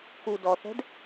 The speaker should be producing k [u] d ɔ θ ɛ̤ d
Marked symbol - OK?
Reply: yes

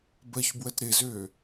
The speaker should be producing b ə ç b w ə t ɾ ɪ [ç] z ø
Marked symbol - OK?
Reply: no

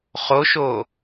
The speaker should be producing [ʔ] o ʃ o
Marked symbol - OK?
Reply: no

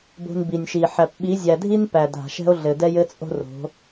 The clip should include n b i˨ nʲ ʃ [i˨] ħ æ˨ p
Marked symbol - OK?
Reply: yes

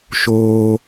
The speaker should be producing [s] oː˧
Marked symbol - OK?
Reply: no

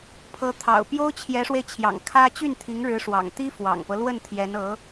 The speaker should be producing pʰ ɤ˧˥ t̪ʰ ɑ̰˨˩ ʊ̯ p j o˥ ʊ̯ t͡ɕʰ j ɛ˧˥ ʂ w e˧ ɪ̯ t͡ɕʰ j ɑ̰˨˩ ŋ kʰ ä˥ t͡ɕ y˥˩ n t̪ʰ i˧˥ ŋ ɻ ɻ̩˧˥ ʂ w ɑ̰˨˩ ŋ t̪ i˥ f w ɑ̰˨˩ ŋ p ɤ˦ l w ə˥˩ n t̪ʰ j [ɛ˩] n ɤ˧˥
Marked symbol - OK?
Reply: no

